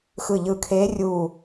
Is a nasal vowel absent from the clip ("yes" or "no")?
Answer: yes